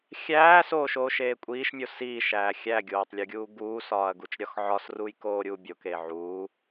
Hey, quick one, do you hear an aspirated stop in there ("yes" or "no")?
no